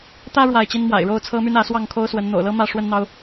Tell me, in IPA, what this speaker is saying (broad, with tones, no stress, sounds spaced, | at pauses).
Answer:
t̪ ä˦ ɻ w a˥˨ ɪ̯ t͡ɕ i˦ n m w a̰˨˩ ɪ̯ ɻ o˥˨ ʊ̯ t͡sʰ ɤ˦ m y˦ n ä˨˦ s w ɑ˥˨ ŋ kʰ o˦ ʊ̯ s w ə˨˦ n n̪ o̰˨˩ ʊ̯ l ɤ˦ m ä˥˨ ʂ w ə˦ n n̪ ɑ˦ ʊ̯